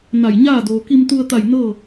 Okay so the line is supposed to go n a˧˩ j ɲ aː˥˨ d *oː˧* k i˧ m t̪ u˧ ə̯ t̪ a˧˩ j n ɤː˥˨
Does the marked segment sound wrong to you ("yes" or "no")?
yes